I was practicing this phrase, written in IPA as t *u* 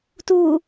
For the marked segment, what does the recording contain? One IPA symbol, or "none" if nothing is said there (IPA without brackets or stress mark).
u